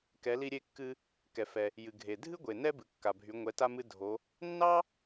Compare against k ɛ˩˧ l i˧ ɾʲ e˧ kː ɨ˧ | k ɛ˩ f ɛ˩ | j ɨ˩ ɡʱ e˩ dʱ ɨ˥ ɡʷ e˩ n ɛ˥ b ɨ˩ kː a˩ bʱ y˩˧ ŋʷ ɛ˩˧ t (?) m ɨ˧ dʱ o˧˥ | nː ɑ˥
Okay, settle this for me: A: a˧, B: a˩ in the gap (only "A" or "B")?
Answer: A